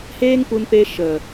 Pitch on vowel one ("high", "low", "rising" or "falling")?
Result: high